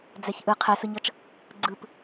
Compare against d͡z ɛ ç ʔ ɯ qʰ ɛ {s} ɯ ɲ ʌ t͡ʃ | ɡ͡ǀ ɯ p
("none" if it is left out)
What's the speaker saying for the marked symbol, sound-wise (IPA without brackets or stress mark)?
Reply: s